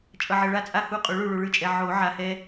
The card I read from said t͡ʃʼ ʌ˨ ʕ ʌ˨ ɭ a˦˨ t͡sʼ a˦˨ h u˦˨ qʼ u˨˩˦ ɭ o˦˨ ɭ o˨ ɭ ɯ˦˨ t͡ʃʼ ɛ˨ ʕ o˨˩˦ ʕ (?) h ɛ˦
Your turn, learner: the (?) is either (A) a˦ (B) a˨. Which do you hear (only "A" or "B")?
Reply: B